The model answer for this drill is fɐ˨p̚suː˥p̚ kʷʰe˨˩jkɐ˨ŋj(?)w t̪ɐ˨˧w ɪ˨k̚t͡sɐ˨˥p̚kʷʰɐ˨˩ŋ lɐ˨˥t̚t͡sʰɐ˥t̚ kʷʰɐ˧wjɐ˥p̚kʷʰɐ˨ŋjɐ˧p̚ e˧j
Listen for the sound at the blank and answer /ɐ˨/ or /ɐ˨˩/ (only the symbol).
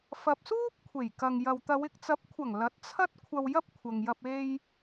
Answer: ɐ˨